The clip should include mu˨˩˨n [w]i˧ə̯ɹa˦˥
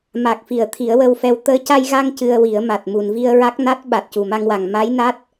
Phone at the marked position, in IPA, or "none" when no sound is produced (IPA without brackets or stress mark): v